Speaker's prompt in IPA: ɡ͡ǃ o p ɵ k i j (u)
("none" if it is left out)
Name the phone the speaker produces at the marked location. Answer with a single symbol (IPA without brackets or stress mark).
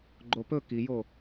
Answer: o